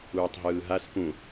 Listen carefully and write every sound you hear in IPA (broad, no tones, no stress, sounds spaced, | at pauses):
uː tˤ ɦ ɯː ɦ a s p ũ